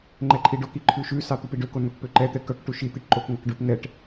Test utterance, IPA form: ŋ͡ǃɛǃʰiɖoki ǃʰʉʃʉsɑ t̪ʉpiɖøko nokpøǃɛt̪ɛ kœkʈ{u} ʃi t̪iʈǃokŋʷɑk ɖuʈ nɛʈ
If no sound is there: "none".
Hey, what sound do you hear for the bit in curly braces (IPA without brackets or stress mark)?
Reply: u